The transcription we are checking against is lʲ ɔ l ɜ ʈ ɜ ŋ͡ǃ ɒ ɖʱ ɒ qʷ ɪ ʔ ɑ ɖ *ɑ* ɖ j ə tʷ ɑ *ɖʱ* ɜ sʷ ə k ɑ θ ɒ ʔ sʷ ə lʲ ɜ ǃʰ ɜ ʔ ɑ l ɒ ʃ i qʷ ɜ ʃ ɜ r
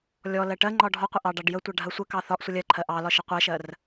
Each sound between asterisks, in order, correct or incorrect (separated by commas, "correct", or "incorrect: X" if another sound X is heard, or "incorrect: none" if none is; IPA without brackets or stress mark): correct, correct